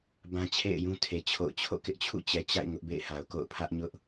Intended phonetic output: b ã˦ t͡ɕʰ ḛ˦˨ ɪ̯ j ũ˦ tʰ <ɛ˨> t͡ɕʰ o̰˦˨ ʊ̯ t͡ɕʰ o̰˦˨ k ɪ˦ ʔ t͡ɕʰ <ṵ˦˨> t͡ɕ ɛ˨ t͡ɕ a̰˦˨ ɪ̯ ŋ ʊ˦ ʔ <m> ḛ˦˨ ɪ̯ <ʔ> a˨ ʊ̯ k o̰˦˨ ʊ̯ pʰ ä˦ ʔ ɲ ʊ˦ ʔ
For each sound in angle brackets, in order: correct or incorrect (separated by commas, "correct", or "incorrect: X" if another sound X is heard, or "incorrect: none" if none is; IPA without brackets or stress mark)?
incorrect: e˨, correct, incorrect: b, incorrect: h